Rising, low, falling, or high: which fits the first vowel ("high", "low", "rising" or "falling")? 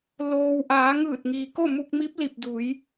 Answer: low